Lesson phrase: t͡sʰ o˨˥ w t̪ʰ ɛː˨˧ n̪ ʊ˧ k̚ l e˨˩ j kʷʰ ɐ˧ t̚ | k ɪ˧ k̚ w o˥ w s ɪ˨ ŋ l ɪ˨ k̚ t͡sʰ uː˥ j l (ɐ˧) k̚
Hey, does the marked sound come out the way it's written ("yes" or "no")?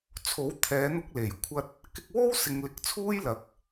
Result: yes